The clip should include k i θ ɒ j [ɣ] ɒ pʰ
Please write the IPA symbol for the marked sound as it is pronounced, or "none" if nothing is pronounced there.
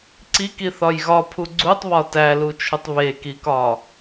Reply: ɣ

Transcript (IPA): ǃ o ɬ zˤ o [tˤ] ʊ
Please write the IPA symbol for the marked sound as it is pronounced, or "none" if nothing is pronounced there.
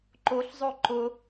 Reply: ǃ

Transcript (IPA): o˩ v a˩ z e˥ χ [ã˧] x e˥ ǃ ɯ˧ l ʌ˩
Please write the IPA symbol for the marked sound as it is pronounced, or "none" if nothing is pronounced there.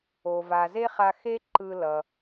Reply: a˧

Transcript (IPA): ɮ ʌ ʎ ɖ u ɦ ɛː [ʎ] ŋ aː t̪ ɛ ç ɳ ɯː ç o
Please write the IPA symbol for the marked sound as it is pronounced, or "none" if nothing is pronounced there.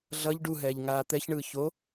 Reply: ʎ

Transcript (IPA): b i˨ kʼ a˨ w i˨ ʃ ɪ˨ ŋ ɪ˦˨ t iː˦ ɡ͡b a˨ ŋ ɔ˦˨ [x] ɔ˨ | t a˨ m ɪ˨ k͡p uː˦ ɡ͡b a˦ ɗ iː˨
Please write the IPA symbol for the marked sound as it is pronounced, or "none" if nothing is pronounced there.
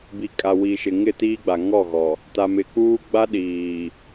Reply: ɣ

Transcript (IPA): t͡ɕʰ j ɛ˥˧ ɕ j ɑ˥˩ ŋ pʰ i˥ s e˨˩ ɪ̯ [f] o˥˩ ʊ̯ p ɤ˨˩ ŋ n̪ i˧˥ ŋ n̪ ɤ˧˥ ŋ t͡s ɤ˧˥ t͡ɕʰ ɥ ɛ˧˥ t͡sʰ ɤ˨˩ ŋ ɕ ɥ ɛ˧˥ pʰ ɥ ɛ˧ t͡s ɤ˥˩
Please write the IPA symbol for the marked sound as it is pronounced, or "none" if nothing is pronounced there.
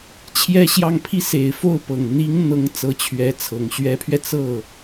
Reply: f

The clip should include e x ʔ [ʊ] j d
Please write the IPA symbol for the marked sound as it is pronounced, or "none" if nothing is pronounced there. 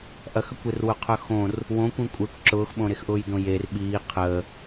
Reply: ʊː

